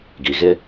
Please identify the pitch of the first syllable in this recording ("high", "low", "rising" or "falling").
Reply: low